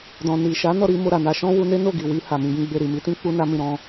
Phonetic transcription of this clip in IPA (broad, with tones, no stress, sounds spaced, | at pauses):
d ɔ̃˨ n i˨ ʃ a˨˦ n ɔ˦˨ ɾ i˧ m o˧ ɾ a˨ n a˧ ʃ ɔ̃˦ w u˧ n e˦ n o˦˨ ɡ i˨ w i˧ h a˨ m ĩ˧ ɡ ĩ˦ ɡ͡b e˦˨ ɾ i˨ m i˨˦ t ĩ˦ k͡p u˦ n a˦ m ĩ˦˨ ɾ ɔ̃˧